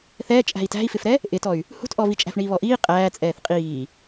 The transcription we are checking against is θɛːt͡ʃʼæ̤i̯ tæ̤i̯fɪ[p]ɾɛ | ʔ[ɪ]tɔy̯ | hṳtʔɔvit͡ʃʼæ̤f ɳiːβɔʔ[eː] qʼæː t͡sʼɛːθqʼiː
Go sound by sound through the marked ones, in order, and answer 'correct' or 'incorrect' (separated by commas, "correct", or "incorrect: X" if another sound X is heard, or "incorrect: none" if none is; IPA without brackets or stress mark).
incorrect: f, correct, incorrect: iː